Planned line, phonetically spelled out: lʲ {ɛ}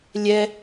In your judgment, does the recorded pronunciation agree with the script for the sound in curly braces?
yes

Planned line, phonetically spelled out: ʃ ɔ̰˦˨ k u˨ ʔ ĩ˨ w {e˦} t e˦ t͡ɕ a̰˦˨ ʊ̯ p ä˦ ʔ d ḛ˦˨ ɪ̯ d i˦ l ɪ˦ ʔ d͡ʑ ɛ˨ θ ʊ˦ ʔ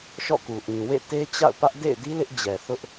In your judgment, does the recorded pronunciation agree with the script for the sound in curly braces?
no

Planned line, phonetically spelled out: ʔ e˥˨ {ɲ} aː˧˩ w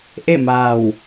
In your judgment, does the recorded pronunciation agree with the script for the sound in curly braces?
no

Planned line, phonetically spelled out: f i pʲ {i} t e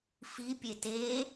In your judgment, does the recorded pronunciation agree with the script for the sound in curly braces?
no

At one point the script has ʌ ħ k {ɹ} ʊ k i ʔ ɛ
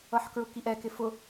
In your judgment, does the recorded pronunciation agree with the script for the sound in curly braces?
yes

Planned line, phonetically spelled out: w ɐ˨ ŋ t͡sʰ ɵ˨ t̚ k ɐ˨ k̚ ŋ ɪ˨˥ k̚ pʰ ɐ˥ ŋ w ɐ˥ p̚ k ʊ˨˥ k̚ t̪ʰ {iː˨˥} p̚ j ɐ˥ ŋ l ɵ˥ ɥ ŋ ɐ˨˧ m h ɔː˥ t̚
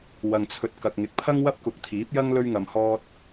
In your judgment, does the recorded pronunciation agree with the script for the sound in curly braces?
yes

